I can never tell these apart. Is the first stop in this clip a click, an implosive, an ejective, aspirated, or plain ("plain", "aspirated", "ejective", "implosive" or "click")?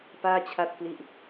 plain